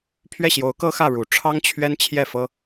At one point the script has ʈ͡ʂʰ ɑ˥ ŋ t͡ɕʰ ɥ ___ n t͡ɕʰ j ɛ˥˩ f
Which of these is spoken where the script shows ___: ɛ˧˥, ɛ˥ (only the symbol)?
ɛ˥